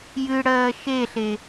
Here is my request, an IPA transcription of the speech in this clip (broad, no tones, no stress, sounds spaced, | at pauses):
j ɨ ɽ ɜː ʃ e ɬ e